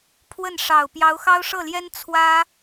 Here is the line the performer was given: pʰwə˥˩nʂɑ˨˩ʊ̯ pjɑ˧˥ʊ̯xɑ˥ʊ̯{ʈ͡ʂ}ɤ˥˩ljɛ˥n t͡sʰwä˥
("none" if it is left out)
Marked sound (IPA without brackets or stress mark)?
ʂ